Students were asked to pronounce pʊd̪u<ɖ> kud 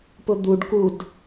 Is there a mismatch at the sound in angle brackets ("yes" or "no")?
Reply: no